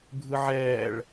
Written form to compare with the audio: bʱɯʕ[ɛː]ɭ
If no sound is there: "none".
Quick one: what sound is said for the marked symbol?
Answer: ɛː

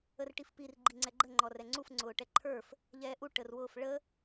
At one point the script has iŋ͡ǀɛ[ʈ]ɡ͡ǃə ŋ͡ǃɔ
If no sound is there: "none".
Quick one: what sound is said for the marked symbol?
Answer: none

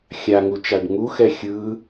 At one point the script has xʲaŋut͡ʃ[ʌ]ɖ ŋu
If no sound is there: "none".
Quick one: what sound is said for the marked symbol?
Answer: a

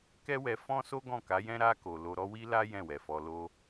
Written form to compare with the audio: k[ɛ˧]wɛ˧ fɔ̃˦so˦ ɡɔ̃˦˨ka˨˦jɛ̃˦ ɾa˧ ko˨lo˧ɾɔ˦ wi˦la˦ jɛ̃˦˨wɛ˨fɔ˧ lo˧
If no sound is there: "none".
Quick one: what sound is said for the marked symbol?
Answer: ɛ˦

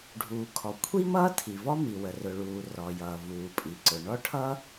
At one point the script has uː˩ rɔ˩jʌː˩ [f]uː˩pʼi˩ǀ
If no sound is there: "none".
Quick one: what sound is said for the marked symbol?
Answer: v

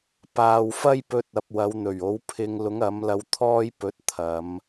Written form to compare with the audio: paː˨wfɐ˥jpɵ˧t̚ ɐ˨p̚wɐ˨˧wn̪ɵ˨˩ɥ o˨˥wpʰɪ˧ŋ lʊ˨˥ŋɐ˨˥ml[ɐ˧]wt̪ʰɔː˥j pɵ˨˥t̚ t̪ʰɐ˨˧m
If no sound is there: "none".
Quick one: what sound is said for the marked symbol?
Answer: ɐ˧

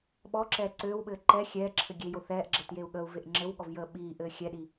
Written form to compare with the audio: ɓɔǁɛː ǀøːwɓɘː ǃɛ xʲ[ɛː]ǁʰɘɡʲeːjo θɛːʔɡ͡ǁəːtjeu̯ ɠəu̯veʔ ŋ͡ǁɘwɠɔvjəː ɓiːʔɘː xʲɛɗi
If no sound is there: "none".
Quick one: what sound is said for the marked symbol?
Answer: ɛː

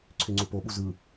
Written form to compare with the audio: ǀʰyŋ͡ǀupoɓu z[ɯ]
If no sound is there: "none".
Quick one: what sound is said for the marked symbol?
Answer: ɯ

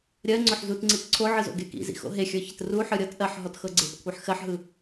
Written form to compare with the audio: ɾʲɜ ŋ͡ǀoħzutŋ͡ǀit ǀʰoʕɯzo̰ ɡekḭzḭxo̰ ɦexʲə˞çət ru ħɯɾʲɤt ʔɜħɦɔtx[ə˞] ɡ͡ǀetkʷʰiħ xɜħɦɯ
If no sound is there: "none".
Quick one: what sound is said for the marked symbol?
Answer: ɤ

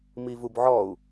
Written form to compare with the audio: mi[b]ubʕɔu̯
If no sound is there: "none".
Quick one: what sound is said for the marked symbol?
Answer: v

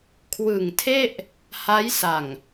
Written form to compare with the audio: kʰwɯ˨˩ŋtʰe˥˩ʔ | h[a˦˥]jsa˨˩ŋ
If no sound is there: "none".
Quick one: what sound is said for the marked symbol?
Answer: a˦˥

